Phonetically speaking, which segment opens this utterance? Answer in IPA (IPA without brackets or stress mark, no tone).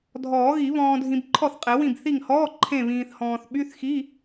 dʱ